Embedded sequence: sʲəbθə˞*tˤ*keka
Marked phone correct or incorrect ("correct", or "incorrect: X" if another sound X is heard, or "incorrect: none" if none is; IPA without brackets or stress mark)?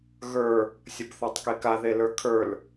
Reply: correct